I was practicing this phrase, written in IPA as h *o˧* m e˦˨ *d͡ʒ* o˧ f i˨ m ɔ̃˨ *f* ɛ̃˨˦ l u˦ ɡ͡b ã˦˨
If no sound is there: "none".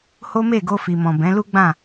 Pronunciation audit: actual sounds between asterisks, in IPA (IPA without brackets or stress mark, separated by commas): o˦, ɡ, b